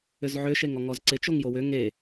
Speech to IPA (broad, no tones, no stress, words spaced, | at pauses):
ʏzʕʏ ʃeŋɔŋɔzǀɪ t͡ʃoŋjowʏ ŋe